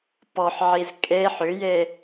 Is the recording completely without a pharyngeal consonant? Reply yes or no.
no